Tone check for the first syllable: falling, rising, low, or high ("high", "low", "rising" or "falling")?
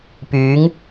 rising